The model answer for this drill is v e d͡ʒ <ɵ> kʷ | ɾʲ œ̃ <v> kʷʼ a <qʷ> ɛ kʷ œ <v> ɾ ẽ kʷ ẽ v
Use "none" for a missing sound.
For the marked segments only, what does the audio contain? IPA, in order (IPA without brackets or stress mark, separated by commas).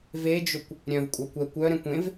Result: ɵ, v, kʷ, none